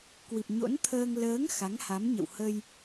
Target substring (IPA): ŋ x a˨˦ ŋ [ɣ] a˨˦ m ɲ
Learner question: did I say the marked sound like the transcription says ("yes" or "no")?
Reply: no